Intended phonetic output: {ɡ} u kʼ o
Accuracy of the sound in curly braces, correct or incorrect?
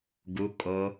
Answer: correct